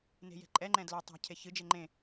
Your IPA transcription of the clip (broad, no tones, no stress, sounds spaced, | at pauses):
n e̤ j ɛ̤ ǃʼ ɛ ŋ͡ǃ ɛ̃ d l ɵ tˤ a̤ cʰ e ç ɨ d͡ʒ e ŋ͡ǃ ẽ